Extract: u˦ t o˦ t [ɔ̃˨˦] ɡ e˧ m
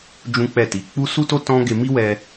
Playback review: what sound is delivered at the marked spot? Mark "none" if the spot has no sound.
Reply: ɔ̃˦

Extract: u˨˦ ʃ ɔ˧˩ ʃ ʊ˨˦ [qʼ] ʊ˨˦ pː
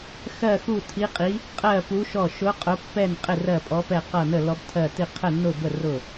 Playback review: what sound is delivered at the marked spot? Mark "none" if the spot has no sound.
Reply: qʼ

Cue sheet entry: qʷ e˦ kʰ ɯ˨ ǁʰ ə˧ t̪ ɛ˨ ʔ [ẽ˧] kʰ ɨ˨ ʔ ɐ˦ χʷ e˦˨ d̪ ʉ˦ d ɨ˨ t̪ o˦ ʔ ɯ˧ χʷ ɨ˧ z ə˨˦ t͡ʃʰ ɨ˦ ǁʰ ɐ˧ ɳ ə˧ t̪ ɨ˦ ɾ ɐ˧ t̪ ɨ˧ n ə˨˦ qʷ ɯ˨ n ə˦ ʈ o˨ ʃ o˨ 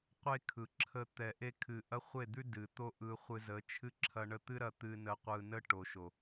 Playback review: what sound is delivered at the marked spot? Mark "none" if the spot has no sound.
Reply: e˧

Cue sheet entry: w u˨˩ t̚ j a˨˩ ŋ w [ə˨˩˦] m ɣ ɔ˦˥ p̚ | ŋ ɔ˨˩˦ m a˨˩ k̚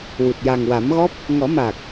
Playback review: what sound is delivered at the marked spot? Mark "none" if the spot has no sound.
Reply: a˨˩˦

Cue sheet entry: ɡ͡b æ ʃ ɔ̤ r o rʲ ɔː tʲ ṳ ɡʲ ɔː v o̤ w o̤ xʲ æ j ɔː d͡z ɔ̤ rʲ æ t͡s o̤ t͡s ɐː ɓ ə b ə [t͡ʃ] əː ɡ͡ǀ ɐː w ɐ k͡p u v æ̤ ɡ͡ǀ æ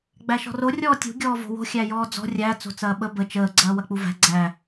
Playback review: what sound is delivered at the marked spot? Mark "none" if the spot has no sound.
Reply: t͡ʃ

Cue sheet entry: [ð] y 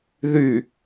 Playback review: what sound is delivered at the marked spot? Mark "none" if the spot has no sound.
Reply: ð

